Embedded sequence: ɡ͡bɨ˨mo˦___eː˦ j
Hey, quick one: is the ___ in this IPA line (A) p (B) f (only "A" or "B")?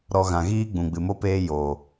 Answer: A